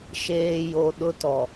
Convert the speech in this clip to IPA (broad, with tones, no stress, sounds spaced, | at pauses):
ʃ eː˨ j o˨ ɗ ʊ˦ t ɔ˨